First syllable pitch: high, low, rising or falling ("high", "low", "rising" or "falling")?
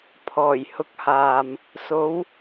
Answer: low